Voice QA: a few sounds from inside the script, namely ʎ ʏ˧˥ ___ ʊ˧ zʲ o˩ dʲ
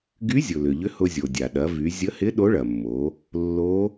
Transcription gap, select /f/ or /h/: h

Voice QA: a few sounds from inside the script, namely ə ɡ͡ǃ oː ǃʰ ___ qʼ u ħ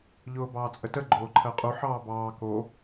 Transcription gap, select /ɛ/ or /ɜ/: ɜ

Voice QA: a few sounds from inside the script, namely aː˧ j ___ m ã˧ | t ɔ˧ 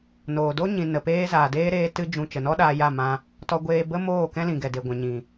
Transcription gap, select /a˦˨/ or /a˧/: a˦˨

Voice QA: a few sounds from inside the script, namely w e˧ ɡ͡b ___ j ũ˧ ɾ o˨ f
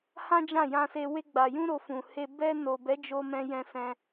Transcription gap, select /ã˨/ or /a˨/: a˨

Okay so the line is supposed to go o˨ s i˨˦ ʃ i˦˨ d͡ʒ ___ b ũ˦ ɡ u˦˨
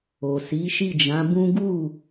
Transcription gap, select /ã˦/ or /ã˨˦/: ã˨˦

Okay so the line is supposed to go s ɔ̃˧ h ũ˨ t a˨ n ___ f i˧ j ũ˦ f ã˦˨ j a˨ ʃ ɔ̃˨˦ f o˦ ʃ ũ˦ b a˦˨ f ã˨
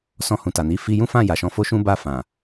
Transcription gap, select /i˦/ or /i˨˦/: i˨˦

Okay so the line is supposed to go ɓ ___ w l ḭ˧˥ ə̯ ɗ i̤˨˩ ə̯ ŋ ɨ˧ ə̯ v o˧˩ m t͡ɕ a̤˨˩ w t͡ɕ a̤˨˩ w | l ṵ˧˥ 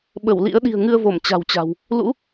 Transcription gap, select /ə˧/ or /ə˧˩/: ə˧˩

